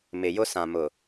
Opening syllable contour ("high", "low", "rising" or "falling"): low